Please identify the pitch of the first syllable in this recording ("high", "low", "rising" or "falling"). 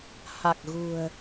low